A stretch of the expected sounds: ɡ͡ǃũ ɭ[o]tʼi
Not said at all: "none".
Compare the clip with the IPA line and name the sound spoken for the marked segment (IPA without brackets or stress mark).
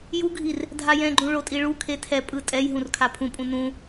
o